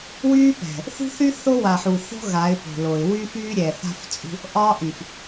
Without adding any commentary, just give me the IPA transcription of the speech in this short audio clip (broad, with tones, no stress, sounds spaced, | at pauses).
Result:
w yː˦ p ɛ̤˨ | θ ṳ˦ θ y˦ θ o˦ w a˨ ħ u˨ θ o̤˦ ɣ a˨˦ ɪ̯ p o̤˨ l o˨ ɪ̯ w y˦ f yː˦ ɾʲ ɛ˨ θ a̤˦ f t͡sʼ ṳ˦ | ʔ ɒː˦ ʔ y˨ f